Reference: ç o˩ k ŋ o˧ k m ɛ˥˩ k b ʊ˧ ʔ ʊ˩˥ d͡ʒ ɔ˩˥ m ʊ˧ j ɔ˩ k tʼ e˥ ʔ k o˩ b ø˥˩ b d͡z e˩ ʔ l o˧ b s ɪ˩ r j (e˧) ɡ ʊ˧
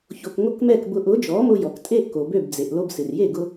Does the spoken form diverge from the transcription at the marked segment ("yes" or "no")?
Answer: yes